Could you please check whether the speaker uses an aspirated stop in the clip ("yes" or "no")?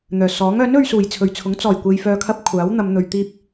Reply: yes